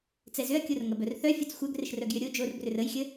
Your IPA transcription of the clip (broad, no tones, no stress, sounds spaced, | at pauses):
t͡s ɛ z ʏ ɐ̯ kʲ o r ŋ ɐ b œ r θ œ fʲ ɐ t͡s xʷ œ ɡ r ɪ ʃ r œ ɡ j ʏ ɾʲ o d͡ʒ o r b r ʏ r ə j xʲ ə